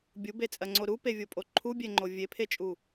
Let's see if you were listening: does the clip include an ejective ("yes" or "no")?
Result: yes